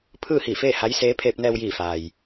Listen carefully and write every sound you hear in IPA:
pʰ ɯː˥˨ h iː˧˩ f eː˥˨ h a˧˥ j s eː˧˥ pʰ eː˧ p̚ n ɛː˧ w j iː˧˩ f aː˩ j

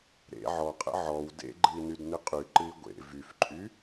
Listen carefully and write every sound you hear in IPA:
ɾ ḛ ʕ ɔ qʼ ə̰ ʕ ɔ w d ḛ ɡ͡ǃ ɨ i̯ n y d n ɨ qʼ y ǃ ɨ i̯ ɡʷ ḛ v y f ǃʼ y

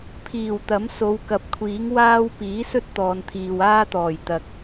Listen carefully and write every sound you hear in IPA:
pʰ iː˨˩ w t̪ ɐ˨˥ m s o˨˧ w k ɐ˨˥ p̚ kʷʰ iː˨˥ ŋ w aː˥ w p iː˨˥ s ɵ˥ t̚ t̪ ɔː˨ n t̪ʰ iː˨ w aː˥ t̪ ɔː˨˩ j t̪ ɐ˨ k̚

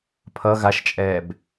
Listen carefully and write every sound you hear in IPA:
pʰ ʌ ɣ a ʃ t͡ʃʼ ɛː b

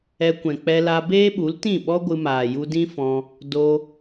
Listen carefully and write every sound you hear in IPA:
ɛ˧ kʷ ɛ̃˨ k͡p ɛ˧ l a˧ b eː˦ ɓ u˨˦ l t ĩ˦˨ ɓ ɔ˦ ɡʷ ɨ˧ m aː˨ j u˧ d ĩ˦ f ɔ̃˧ | d o˧

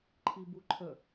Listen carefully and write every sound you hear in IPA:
ǃʰ i b u ǃʰ ə

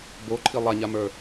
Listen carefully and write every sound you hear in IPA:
b o ǃʰ i lˠ a ɲ a m ə˞

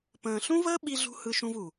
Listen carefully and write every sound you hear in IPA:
p ə̃ː˨ ɬ ũ˦ v əː˦ ɓ i˦ ɮ ṳ˦ h ɯ˧ ʃ ũ˧ v u˨

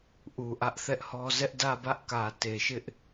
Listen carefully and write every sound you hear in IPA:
ʔ u˨ ʔ ä˦ ʔ θ ɛ˦ ʔ h ɔ˦ z ɛ˦ ʔ d ä˦˨ b ä˦ ʔ k ä˨ t e˨ ʃ ɪ˦ ʔ

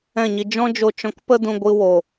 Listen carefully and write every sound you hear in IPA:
ɛ̃˦˨ ɲ i˧ d͡ʒ ɔ̃˦ d͡ʒ o˧ t͡ʃ ɔ̃˧ k p ə˦ d ũ˧ ɡʷ ɨ˧ w o˨

